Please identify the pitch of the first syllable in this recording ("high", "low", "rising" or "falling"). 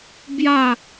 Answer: falling